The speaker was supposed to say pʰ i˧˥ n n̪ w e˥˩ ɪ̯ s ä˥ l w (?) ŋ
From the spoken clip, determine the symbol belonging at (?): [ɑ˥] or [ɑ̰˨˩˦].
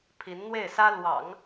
ɑ̰˨˩˦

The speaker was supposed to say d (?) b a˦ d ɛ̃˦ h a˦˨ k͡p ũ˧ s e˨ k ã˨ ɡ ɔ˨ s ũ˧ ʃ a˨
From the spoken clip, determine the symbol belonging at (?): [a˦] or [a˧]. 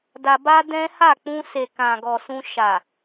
a˧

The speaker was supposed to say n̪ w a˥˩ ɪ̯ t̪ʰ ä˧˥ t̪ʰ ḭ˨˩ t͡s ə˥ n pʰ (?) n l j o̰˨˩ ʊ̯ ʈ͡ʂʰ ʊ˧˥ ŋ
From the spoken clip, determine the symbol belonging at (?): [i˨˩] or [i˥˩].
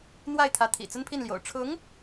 i˥˩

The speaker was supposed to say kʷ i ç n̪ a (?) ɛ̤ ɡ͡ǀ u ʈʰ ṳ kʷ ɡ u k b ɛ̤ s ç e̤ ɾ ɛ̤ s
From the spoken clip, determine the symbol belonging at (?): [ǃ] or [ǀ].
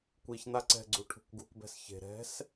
ǀ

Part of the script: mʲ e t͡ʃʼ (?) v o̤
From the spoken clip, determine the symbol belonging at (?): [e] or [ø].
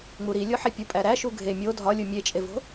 e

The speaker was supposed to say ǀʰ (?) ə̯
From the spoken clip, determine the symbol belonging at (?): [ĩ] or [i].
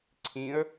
ĩ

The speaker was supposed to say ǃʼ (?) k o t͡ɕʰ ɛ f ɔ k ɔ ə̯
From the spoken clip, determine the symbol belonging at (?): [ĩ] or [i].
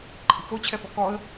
i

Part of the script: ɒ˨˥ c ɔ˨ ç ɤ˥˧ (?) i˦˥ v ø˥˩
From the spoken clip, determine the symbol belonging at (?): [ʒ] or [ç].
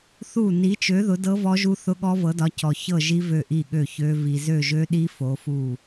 ʒ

